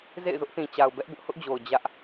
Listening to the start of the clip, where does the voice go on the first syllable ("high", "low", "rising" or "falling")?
falling